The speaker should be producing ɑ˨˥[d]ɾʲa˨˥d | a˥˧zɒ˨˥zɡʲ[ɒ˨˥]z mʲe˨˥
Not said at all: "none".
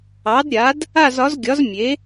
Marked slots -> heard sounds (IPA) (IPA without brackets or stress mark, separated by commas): d, ɒ˨˥